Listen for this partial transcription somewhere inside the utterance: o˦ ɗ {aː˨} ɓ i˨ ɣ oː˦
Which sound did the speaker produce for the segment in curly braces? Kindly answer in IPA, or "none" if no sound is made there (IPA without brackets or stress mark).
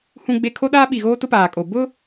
aː˦